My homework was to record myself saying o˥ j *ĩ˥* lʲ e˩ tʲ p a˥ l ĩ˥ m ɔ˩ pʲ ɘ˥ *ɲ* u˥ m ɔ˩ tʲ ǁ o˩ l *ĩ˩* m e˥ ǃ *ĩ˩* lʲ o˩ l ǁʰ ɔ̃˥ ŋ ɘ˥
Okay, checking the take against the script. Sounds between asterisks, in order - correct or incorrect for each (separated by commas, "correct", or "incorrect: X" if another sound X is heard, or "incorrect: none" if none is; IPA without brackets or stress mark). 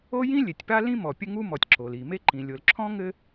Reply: correct, incorrect: ŋ, incorrect: i˩, correct